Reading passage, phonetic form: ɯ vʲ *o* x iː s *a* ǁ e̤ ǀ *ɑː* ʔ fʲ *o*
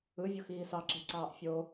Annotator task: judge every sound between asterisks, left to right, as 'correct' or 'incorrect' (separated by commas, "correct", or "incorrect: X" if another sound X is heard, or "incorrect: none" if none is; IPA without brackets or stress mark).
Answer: correct, incorrect: ɑ, correct, correct